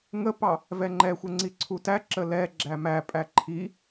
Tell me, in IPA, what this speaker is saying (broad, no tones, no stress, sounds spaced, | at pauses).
ŋ ə p ɑ | v ɛ ŋ͡ǃ ɛ xʷ ɛ ŋ͡ǀ i ǀʰ u t æ ǁ ə l ɛ ɡ͡ǁ æ m æ pʼ æ ǃʰ i